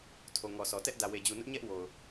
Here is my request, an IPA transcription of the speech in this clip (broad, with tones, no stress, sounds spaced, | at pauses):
tʰ o˨ ŋ ɔ˨ sʰ ɔ˨ t ɛ˦ ʔ d ä˨ w e˨ d͡ʑ u˨ n ʊ˦ ʔ ɲ ɛ˦ ʔ w o˨ ʊ̯